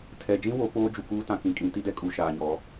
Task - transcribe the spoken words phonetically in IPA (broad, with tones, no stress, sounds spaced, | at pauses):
tʰ ɛ˨ d͡ʒ ĩ˦ w o˨˦ k͡p oː˦ d͡ʒ u˨ k uː˦ t ã˨ k ĩ˨ kʼ ĩ˨˦ t i˦ d ɛ˦ kʼ u˨ ʃ aː˨ ɲ ɔ˨˦